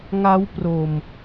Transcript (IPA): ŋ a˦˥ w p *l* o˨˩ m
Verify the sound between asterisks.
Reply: incorrect: r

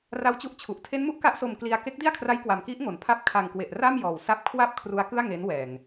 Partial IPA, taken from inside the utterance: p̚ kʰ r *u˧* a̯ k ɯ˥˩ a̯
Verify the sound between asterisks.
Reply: incorrect: u˦˥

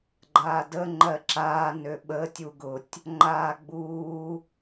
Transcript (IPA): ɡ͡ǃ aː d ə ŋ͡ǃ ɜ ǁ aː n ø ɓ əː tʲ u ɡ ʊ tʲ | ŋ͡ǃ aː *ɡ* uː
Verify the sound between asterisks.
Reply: incorrect: ɡ͡b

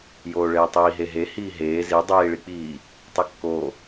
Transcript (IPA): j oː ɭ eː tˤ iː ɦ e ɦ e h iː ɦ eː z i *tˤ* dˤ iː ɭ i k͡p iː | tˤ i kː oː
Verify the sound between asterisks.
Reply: incorrect: none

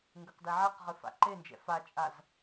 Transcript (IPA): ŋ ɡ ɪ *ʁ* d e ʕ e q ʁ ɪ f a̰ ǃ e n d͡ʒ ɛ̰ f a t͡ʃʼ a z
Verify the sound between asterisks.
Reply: incorrect: q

